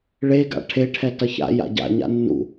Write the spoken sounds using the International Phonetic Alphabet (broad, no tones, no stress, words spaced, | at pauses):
ɭeɡa̰ ʈʰeʈʰɛ tʌça̰ja̰ ɟa̰ɲa̰ nːṵ